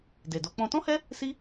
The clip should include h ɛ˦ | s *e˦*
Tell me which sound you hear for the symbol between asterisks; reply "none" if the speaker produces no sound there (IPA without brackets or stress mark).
i˦